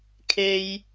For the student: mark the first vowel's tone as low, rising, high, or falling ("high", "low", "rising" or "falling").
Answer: high